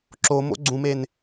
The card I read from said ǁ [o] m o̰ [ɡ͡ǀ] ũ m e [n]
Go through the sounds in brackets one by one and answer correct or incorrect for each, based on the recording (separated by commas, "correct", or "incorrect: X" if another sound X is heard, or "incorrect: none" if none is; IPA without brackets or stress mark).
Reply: correct, correct, correct